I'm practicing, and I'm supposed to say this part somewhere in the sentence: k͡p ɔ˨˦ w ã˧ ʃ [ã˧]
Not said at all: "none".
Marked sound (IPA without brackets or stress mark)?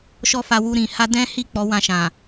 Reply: ã˨